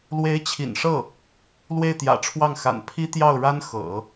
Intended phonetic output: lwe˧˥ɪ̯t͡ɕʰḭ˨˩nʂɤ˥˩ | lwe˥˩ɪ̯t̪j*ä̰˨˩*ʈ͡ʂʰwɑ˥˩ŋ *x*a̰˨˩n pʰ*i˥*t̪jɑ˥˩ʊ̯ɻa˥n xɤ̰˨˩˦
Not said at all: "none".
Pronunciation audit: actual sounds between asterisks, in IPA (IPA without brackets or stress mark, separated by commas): ä̰˨˩, x, i˥